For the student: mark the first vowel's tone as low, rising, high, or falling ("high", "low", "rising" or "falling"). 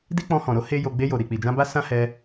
high